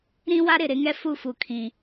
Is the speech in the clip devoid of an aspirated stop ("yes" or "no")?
no